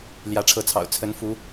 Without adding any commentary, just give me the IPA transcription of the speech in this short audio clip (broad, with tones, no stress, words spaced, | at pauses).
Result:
ljä˨˦ʈ͡ʂʰɤ˨˦t͡sʰɑ̰˨˩ʊ̯ t͡sʰə˨˦nfu˨˦